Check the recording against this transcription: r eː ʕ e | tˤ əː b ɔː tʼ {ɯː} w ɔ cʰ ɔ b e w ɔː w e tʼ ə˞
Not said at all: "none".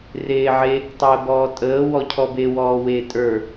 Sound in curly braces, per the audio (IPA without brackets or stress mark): əː